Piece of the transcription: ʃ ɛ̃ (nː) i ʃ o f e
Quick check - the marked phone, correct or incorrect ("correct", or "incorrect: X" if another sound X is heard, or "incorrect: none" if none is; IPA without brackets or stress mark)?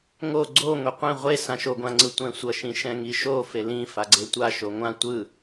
incorrect: ŋ